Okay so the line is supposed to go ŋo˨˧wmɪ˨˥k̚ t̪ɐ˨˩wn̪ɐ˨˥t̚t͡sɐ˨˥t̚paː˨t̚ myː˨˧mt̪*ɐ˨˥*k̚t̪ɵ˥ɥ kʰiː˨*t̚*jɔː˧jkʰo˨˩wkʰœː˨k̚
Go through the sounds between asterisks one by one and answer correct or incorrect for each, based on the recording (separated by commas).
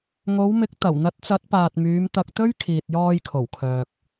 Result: incorrect, correct